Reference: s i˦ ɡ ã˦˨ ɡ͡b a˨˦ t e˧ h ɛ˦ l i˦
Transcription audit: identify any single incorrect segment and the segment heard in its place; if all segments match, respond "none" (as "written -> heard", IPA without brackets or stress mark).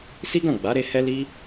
t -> ɾ